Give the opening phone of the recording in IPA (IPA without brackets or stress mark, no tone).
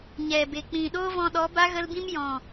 ɲ